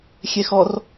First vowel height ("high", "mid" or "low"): mid